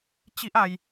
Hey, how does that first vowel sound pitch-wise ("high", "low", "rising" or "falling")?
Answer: high